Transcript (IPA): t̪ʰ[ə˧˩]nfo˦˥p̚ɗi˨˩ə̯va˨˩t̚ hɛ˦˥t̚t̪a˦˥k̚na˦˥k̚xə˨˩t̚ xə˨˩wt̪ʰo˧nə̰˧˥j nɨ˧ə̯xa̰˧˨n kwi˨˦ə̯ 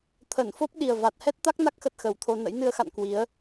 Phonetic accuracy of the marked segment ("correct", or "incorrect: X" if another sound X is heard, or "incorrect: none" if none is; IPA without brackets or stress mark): correct